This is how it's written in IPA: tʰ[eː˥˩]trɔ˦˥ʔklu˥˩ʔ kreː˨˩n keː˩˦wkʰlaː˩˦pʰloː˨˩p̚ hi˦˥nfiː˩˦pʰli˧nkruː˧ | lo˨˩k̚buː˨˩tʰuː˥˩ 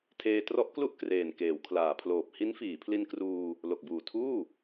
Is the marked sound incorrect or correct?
incorrect